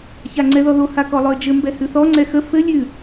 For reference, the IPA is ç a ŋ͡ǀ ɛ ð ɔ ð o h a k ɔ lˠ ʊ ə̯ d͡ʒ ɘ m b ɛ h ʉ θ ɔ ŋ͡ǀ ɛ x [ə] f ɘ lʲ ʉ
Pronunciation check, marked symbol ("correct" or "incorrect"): correct